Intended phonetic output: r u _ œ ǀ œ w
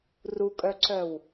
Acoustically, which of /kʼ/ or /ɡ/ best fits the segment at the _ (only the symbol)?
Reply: kʼ